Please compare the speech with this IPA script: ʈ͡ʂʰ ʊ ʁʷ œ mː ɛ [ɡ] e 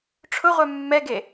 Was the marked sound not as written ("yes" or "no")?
no